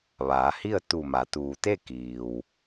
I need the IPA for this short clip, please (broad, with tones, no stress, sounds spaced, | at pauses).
ʋ aː˩˧ h i˥˨ ə̯ t̪ u˧˩ m a˩˧ t̪ uː˩ t̪ e˥˨ k iː˩ w